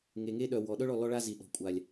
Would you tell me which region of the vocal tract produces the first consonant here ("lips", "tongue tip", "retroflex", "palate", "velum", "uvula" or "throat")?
velum